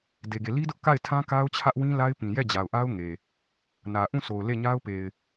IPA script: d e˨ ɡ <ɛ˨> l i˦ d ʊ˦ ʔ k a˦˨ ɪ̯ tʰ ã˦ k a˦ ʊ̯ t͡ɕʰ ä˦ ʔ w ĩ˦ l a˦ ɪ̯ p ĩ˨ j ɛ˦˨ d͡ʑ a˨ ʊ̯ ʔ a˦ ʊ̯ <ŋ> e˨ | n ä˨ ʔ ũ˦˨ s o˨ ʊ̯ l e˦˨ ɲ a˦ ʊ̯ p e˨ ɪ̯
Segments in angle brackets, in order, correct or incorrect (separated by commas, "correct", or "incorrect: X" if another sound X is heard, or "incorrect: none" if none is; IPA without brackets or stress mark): incorrect: e˨, correct